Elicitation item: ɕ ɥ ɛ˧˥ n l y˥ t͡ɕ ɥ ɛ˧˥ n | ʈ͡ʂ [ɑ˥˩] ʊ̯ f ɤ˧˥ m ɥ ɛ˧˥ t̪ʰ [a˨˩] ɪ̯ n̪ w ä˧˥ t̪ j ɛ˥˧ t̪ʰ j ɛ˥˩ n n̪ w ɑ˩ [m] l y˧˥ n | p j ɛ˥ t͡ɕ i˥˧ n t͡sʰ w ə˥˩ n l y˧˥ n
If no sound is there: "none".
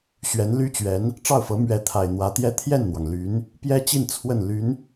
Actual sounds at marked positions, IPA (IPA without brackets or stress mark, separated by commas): ɑ˥˩, a˨˩, ŋ